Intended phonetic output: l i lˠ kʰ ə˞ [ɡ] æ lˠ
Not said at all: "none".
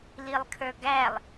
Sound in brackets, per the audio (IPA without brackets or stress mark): ɡ